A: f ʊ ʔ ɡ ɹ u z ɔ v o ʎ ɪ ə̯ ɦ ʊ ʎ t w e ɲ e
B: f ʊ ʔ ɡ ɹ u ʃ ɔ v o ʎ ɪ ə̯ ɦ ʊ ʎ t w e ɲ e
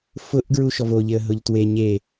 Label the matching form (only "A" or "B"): B